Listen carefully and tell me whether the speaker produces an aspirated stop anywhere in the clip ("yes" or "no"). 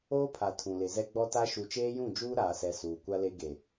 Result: yes